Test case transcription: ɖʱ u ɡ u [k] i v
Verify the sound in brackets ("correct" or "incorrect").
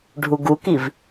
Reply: correct